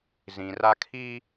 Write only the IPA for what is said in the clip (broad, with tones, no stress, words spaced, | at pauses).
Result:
zĩ˨ra˦ kʰi˦